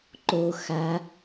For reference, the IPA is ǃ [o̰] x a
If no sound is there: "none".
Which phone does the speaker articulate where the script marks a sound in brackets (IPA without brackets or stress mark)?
o